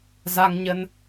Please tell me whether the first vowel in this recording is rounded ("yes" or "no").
no